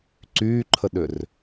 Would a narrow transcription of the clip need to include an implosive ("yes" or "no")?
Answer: yes